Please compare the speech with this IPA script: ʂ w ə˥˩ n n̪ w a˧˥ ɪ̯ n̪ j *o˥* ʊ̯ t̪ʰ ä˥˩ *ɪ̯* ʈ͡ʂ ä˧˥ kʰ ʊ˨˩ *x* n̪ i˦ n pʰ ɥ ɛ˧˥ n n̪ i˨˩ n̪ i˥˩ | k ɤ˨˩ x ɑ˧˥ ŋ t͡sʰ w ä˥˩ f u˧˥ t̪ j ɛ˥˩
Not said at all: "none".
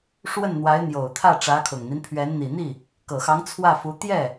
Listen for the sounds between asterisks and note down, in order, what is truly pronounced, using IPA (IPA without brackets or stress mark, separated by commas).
o˨˩, none, ŋ